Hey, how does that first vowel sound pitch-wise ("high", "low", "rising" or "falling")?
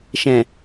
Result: low